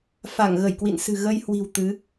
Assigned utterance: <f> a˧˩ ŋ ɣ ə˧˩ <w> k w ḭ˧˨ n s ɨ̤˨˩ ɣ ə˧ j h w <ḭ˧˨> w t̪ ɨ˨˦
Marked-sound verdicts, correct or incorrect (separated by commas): correct, incorrect, incorrect